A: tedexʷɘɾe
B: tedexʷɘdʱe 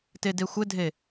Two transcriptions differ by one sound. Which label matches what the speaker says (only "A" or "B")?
B